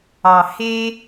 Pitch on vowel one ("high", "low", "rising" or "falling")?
low